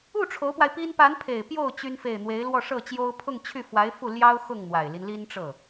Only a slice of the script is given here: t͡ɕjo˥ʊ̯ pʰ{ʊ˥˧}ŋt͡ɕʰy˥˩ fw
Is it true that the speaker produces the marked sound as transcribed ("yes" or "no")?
yes